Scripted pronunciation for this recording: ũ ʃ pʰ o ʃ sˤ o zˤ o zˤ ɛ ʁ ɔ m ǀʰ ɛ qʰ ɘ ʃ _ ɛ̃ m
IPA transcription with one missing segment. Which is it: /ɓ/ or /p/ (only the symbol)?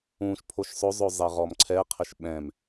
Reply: ɓ